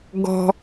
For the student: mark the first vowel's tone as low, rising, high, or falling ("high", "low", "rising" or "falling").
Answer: low